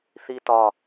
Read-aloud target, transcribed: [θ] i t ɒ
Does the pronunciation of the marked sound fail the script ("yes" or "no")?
no